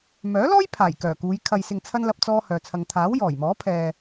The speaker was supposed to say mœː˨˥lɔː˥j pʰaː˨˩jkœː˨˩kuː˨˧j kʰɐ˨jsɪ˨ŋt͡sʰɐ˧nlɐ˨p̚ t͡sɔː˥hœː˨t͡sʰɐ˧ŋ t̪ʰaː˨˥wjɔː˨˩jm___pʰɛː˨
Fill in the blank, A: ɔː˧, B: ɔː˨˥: B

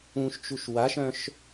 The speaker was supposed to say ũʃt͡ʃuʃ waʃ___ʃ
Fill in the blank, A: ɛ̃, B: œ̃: B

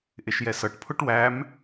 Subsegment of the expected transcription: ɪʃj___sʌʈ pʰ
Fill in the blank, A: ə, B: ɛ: B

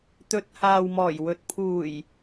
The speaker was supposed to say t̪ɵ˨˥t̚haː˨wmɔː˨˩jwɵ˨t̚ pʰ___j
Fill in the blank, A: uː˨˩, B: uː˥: A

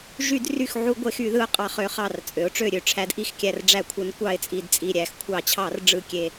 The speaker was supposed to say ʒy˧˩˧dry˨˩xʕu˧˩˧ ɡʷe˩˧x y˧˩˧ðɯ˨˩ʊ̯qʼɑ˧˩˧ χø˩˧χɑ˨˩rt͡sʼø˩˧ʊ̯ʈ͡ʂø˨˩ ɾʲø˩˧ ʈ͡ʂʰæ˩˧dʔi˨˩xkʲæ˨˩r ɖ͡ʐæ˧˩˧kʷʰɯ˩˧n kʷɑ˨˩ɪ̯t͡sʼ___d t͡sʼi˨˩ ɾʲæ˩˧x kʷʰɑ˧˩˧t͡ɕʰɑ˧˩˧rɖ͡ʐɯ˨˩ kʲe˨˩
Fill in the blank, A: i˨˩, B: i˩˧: A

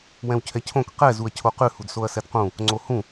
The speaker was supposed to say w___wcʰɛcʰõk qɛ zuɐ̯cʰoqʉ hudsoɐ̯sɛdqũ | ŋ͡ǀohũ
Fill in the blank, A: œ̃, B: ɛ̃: B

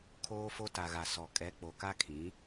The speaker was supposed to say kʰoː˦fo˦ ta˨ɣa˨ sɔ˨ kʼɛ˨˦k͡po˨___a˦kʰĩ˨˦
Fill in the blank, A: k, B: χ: A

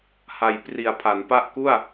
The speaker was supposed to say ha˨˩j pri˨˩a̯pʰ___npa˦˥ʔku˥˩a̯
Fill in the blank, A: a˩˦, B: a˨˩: A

